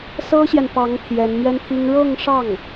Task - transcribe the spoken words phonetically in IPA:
s ɤ˥ ɕ j ɛ˨ n p ɑ˧˥ ŋ t̪ʰ j ɛ˧˥ n m ɥ ɛ˥ n t̪ʰ i˥ ŋ ɻ ɤ˥˧ ŋ ʂ ɑ˥˩ ŋ

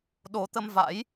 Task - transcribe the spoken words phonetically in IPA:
ɗ o˨˦ t̪ ə˧ m v a̰˧˥ j

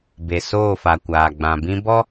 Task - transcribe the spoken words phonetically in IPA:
b e˨ s oː˦˨ f a˨ kʷ aː˨ ɡ͡b ã˨ b ĩ˦ b ɔ˦

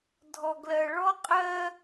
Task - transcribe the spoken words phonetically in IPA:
dʱ ɔ˨ ɡ l ɜ˨ ɭ ɔ˦ qʼ ɜ˦

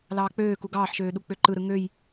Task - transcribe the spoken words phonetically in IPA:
l ɑː k͡p øː k u ɡ ɑː ħ ʃ øː ɗ u k͡p ø ǃ ɯ ɾ ɯ ŋ ø j

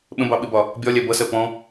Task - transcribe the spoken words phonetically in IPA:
ɓ ə̃ b ɑ ɓ ɪ b ɒ | bʲ ɒ lʲ æ b ʌ s ɜ p ɔ̃

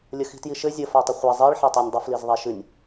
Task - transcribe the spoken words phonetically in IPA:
lʲ ə x i̤ t j i ʃ ɘ zʲ ə f a tˤ ə χʷ a zˤ i ɭ ħ ɛ tˤ ə˞ nʲ dˤ ə f l i z ðˤ ɛ ʃ ɨ nʲ

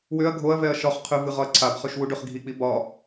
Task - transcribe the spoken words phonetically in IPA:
w ʏ ɐ̯ ɡʱ o ɐ̯ v ɛ ɐ̯ ʃ ɒ χ qʰ ʏ v ɨ ʁ ɒ ɐ̯ ǀʰ a b χ ø ʃ w u ɖ ø χ ɡʱ i k͡p i b ɒ

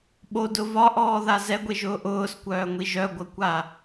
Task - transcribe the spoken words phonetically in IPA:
ɓ o d ʊ v ɒ ʔ ɔː ð a z ɛ ɡʷ e ʒ ʊː ʔ ʊː s kʷ œː ŋʷ i ʒ œ ɡʷ ɐ kʷ a

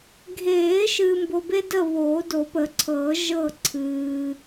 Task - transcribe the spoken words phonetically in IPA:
ɡʱ eː˨˩˦ ʃ ɨː˨ m b o˨ b e˦ d ə˦˨ β oː˨˩˦ d o˨˩˦ p ə˨˩˦ ǀʰ ɤː˨˩˦ ʒ ɤ˦˨ ǀʰ ɨː˨

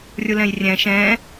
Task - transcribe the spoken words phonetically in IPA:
rʲ u l ɛ̃ j rʲ ɛ̃ ʃ ɛ̃

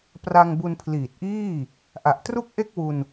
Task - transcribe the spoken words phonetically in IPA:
p r a˧ ŋ b u˧ n pʰ l iː˨˩ t̚ ʔ iː˥˩ | ʔ a˨˩ ʔ t r u˥˩ k̚ ʔ e˥˩ k̚ w u˧ n

